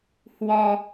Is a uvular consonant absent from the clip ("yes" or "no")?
yes